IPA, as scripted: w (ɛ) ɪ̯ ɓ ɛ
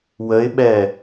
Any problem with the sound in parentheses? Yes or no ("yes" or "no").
yes